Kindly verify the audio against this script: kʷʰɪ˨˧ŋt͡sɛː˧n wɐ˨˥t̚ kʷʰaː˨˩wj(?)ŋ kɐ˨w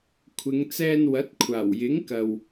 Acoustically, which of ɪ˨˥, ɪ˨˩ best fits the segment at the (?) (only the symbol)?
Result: ɪ˨˥